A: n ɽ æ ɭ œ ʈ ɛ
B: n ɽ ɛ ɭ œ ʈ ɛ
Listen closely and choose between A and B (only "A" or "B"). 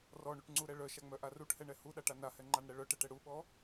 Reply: B